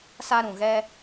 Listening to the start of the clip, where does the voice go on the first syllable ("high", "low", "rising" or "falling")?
high